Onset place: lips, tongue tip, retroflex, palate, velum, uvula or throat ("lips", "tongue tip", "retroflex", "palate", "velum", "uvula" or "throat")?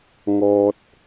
velum